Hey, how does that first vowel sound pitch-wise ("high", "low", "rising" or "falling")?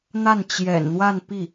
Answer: falling